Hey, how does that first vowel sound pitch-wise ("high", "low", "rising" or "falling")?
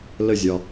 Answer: falling